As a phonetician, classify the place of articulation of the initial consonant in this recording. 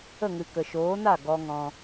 velar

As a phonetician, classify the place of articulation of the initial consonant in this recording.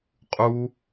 uvular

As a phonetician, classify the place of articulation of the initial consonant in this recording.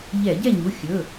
palatal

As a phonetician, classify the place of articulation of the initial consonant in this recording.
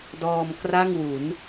alveolar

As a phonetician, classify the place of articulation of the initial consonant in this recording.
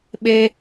labial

